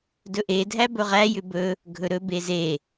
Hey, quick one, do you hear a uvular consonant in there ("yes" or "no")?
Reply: yes